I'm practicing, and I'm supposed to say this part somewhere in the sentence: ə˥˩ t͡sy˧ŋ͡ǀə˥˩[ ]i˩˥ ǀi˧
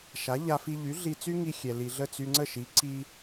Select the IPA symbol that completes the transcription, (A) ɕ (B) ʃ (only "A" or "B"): B